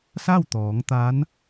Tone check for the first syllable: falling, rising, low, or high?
falling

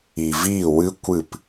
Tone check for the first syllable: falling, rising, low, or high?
low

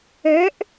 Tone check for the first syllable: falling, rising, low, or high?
rising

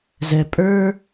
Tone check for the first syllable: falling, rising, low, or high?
low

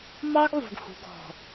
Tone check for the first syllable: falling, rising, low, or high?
high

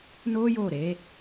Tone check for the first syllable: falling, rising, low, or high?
high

